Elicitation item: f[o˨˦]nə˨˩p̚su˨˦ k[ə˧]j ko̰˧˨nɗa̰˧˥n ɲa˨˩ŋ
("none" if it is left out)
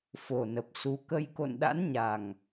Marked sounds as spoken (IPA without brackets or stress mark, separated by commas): o˨˩, ə˧